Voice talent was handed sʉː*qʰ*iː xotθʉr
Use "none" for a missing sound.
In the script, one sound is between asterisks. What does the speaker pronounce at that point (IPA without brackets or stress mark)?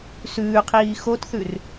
qʰ